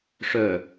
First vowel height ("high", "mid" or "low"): mid